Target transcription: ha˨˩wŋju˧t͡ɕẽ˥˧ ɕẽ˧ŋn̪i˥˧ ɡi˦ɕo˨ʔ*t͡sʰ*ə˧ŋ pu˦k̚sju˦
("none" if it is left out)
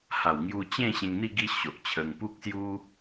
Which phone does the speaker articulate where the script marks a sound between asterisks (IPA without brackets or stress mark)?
t͡ɕʰ